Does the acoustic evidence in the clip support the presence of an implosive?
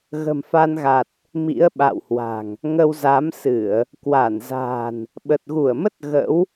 yes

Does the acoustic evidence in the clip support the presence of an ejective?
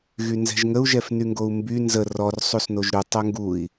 no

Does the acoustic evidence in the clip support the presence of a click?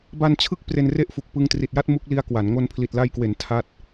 no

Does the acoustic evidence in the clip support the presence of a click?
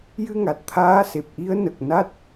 no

